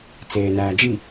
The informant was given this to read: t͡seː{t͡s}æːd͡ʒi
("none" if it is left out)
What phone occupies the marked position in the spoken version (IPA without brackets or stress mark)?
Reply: n